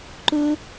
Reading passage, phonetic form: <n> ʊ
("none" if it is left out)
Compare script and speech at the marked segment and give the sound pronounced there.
ǃ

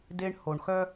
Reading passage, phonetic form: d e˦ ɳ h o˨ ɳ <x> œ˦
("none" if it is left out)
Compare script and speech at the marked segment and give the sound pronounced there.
x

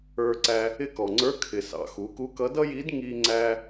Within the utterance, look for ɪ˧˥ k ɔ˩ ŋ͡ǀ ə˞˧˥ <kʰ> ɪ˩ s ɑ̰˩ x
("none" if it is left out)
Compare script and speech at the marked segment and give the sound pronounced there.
kʰ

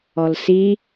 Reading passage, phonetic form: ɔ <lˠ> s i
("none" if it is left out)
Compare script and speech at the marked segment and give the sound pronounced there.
l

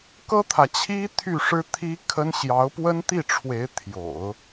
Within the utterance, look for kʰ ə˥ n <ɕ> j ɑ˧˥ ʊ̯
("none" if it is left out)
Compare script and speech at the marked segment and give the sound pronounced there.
ɕ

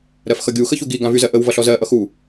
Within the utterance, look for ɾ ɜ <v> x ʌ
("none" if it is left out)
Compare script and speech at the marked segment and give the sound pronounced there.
f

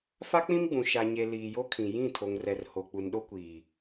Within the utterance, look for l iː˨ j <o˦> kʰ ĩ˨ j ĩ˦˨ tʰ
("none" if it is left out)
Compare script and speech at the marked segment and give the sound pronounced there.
o˦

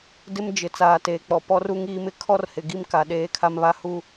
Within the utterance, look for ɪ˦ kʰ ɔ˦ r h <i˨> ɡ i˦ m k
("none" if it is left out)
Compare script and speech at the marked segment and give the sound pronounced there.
ɪ˨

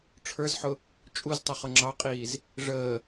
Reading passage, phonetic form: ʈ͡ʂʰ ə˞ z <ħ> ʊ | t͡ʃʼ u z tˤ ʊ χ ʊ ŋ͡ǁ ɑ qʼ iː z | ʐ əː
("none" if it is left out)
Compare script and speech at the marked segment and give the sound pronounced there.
ħ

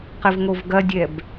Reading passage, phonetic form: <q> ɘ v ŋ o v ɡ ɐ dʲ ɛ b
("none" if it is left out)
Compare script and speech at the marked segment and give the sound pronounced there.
q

